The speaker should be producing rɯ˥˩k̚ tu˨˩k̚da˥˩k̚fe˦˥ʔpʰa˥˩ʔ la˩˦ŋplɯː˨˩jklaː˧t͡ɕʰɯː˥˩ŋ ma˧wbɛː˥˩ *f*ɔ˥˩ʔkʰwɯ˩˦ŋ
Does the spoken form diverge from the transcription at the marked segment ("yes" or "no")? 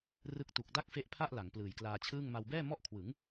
yes